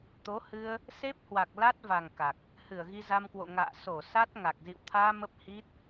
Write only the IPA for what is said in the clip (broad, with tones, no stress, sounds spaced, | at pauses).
t̪ o˨˦ h ɨ˧ ə̯ | s e˦˥ p̚ h w a˨˩ k̚ l a˦˥ t̚ v a˨˩ ŋ k a˨˩ k̚ | h ɨ˧˩ ə̯ ɣ i˧ z a˧ m k w o̰˧˨ ŋ a̰ː˧˨ s o˧˩ s a˦˥ t̚ ŋ a˨˩ k̚ z ḭ˧˨ w t̪ʰ aː˧ m ə˦˥ p̚ h i˦˥ t̚